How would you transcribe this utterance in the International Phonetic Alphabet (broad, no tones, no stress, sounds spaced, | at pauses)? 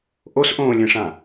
ʔ o s ʔ õː lʲ ẽ ʂ ã